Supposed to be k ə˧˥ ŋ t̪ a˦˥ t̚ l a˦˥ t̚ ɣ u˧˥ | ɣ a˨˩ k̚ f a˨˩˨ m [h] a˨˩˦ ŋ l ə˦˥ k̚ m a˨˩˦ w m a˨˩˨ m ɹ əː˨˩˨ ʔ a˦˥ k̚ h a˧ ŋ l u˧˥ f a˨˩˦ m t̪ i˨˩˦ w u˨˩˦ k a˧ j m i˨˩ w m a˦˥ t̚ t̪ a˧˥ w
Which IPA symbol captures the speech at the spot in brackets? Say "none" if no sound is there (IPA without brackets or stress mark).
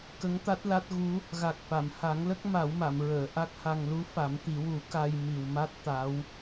h